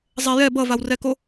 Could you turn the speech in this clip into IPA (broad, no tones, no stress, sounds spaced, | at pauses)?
zˤ ɛ j ɛ b ʌ v a w r ɛ k o